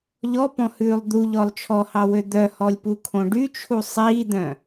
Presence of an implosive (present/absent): absent